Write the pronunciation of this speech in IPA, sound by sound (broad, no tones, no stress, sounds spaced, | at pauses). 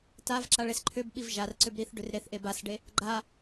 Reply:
t a v ǁ a ɭ e s ǃʰ ʏ b ɓ i v ʒ a r ǀ ʏ b ɾ i θ ɖ ʏ r ɾ e θ ʔ e b a s ɖ e | ɡ͡ǃ a